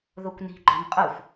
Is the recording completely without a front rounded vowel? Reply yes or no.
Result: yes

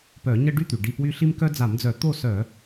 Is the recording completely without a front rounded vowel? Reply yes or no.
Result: no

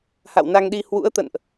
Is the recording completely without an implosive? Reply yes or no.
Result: no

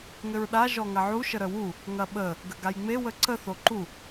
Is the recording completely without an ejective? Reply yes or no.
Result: yes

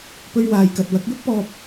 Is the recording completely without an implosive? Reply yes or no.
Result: yes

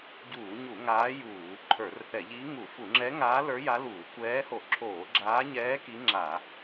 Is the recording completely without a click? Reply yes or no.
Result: no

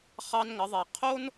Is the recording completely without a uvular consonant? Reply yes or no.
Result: no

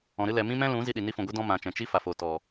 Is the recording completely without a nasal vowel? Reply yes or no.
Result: no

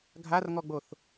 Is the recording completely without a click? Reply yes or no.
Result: yes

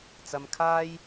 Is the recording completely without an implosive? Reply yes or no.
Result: yes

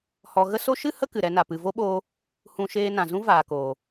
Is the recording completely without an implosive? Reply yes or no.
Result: no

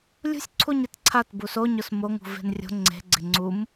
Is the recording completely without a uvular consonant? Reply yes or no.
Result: yes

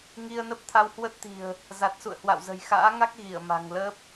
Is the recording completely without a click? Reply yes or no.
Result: yes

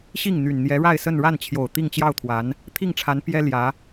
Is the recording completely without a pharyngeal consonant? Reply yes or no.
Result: yes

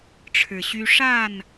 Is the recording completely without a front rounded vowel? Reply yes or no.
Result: no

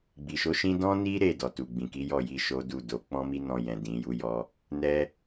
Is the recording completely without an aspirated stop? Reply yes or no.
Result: yes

